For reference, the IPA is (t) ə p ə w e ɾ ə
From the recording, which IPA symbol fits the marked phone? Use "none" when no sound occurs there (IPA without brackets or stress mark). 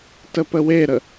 t